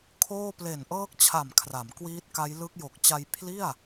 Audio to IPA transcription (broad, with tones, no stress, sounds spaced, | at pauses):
kʰ oː˥˩ p l e˨˩ n ʔ ɤː˦˥ k̚ t͡ɕʰ a˨˩ m kʰ r a˩˦ m k w iː˦˥ t̚ k a˦˥ j l ɯ˦˥ k̚ j o˨˩ k̚ t͡ɕ a˧ j pʰ l i˥˩ a̯